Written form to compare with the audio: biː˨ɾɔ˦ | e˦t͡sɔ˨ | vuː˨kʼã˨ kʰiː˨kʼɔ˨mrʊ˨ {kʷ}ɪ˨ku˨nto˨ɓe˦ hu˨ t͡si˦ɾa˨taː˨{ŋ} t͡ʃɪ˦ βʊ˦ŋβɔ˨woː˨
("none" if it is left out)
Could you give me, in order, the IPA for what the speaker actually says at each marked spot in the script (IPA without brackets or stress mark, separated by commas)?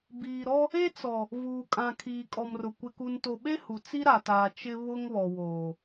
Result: kʷ, none